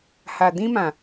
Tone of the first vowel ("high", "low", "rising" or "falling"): low